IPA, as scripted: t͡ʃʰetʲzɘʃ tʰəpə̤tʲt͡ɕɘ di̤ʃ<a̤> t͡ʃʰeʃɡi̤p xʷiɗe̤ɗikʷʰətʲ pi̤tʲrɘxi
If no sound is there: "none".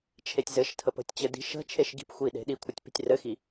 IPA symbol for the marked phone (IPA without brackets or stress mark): ə̤